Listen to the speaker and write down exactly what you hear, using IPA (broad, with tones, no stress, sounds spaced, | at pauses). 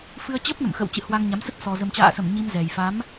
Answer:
f ɨ˧ ə̯ t͡ɕ ə˦˥ p̚ n ə̰˧˨ m x ə̰˧˨ w t͡ɕ ɨ̰˧˨ h w a˧ ŋ ɲ a˨˦ m s ə˦˥ t̚ s ɔ˨˩ z ə˨˩ m t͡ɕ a̰ː˧˨ s ə˧˩ m ɲ i˧ m z ɛ˨˩ j f a˨˦ m